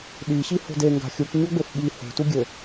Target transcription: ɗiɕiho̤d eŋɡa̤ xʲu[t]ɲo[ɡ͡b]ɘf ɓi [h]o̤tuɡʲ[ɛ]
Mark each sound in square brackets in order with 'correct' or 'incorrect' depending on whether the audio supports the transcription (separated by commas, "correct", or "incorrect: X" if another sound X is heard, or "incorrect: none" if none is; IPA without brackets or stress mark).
incorrect: k, correct, correct, incorrect: ɘ